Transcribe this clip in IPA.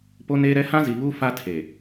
po˦neː˦ɾɛ˦ hã˦zi˨βu˦ fa˦tʰe˨

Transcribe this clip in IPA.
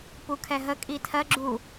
pukʰɛɦə kʼitʰɜ ɡ͡ǁu

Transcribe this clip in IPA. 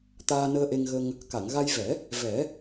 t̪aː˧nəː˧ʔe˧ŋ ɣə˧ŋ | ka˨˩˨ŋɣa˧jvɛ˨˩˦ | vɛ˨˩˦

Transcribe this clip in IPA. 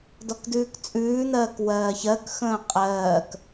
dɔkdʉːkt͡sʼʉːn̪ɜːk wɜːçɜkxə̃ː qʼɜːk

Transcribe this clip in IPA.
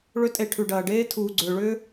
ɭʏ˦tʼe˧ʈʰʉ˨ɖɐː˨ ɖeː˦tʰuː˨ɡ͡ǀʏː˨ɭʏː˦

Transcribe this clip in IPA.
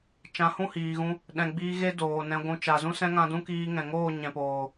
t͡ʃã˨˦hũ˦˨hiː˨ɣũ˧ | ɗɛ̃˨ɡ͡biː˧ ɣe˦doː˨nɛ̃˧ɡʷũ˧ t͡ʃa˨zũ˦sɛ̃˦ŋã˧ dũ˦kiː˧ ŋɛ̃˨ŋoː˦˨ ɲɛ̃˨poː˨

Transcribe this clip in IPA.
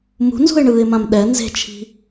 mṳnzṳɪ̯ɳɯːɪ̯mãm ɗɛ nze̤t͡ʃʰi̤

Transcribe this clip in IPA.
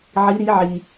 ʕi˧˥ɾi˧˥ ʕi˧

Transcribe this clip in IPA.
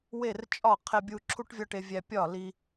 we˦˨rt͡ʃʼɒ˦˨ qʰe˧ bʲu˧ǁʰu˦ʈvʲɒ˦ʈe˧ vʲæ˧ pʲɒ˦˨li˧

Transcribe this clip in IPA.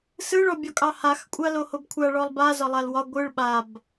sɯɭɔbʲɒkʼɑ hax kʷʼalohobkʷʰa ɭɔlˠba zɒlˠalwɒ ɡʷɯɭ ɓab

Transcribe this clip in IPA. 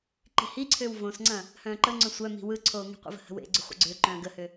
ǃi̤hiǀʰʏːw võsŋ͡ǀɐ̃ | hœ̃ːǃəŋ͡ǀœ̃ sʷœ mi̤wɯǀʰoː ŋi̤qʷə̰və̤ hə̤wḛɡ͡ǀʏ χʷə̰ɡ͡ǀʏːǃœ̃ː ɡəhʏ

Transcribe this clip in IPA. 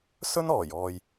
sɵ˥nɔː˨˩jɔː˨j

